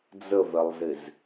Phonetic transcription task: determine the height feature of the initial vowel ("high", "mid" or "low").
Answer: mid